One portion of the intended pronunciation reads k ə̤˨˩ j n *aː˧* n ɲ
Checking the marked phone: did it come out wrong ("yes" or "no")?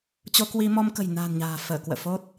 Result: yes